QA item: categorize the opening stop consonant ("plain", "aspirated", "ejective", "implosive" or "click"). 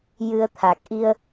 aspirated